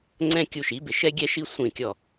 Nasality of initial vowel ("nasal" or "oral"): nasal